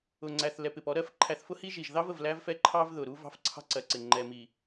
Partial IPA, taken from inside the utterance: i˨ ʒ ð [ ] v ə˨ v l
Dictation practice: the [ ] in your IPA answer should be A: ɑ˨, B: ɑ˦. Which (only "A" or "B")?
B